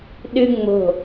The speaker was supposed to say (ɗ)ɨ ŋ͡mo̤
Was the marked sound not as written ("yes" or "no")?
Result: no